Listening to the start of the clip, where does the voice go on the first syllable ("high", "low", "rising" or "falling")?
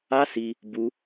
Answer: high